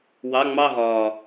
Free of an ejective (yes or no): yes